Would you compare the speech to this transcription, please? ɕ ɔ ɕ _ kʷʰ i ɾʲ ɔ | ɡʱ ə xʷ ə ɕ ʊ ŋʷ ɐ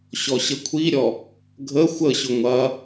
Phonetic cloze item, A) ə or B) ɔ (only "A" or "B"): A